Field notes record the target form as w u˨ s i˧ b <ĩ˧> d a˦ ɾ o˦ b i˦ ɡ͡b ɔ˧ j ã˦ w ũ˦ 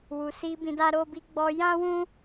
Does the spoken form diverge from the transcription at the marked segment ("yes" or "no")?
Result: no